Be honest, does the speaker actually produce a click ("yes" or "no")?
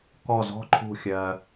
yes